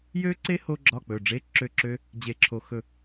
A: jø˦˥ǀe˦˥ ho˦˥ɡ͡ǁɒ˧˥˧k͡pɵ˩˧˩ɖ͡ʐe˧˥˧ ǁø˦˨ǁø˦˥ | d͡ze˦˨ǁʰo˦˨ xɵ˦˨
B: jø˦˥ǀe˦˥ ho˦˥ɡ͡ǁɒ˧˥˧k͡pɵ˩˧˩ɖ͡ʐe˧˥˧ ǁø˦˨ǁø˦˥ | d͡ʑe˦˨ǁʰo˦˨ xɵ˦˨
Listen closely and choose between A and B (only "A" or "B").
B